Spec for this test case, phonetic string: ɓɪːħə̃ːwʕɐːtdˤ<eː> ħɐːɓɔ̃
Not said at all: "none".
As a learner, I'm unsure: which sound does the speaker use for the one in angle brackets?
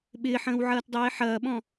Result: eː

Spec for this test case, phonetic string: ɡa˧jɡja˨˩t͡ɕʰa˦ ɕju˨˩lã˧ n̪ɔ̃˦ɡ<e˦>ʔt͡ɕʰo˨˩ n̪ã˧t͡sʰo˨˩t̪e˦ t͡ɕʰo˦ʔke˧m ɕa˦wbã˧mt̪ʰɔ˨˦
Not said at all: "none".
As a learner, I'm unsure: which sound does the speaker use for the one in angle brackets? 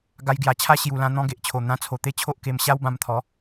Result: e˨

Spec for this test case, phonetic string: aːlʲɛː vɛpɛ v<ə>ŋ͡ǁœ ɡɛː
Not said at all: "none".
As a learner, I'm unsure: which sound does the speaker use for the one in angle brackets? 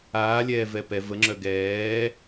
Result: ə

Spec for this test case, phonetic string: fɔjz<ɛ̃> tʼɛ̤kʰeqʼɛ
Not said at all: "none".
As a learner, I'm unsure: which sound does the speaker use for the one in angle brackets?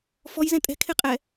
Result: ɛ̃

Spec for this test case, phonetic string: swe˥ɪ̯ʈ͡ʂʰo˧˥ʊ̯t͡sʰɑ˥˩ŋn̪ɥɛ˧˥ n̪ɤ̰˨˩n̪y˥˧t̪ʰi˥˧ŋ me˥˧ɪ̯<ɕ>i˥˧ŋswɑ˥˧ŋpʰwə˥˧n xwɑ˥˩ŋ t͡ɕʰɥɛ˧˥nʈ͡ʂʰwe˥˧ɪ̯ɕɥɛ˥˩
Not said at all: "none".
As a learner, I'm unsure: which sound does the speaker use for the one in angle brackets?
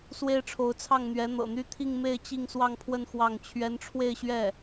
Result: t͡ɕ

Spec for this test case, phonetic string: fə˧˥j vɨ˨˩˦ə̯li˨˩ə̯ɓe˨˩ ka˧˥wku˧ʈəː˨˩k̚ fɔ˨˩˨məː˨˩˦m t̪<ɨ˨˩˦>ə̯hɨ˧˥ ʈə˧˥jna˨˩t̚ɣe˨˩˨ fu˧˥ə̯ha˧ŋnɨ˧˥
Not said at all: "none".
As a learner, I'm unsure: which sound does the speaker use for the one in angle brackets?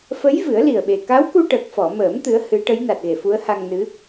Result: ɨ˧˥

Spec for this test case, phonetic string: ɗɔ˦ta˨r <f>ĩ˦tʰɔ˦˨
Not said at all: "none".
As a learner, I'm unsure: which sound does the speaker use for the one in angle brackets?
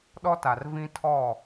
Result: v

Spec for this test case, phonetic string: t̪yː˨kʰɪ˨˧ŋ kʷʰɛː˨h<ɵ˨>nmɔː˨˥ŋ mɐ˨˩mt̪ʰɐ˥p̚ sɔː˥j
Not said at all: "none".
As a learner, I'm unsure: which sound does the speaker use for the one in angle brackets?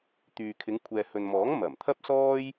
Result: ɵ˨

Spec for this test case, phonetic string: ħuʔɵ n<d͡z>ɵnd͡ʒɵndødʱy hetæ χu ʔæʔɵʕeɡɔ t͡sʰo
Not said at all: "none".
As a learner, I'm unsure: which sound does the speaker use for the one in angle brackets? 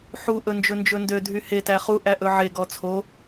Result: d͡ʒ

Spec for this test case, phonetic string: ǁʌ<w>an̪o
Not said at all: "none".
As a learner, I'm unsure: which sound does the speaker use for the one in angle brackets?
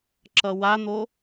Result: w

